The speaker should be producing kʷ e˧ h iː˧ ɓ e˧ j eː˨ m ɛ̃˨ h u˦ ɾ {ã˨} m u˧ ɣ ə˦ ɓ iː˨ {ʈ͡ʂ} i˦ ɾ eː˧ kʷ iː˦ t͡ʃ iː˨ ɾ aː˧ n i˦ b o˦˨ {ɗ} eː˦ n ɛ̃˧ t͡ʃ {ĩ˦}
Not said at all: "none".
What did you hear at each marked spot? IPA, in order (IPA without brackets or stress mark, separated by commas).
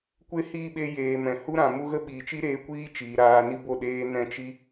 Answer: ã˨, t͡ʃ, ɗ, i˦